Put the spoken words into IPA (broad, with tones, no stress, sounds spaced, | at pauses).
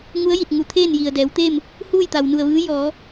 ŋ u˧˥ ə̯ j i˧˩ t̚ ŋ u˩˧ t̪ʰ eː˥˨ n j i˩ ə̯ d ɛː˩˧ w t̪ eː˥˨ m | h uː˥˨ j t̪ a˩ w n u˧˩ ə̯ ʋ ɯː˧˥ j ɔː˩˧